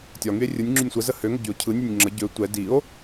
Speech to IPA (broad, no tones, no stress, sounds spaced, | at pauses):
tʲ ɒ ŋ y e̯ rʲ ɯ nʲ ŋ͡ǁ y nʲ sʷ ə z ə h ø ŋ ə ɟ y o̯ cʰ ɯ nʲ ø nʲ ŋ͡ǁ ə ɟ ø tʷ ɛ d i o̯